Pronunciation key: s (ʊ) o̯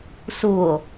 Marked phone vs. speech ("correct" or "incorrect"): incorrect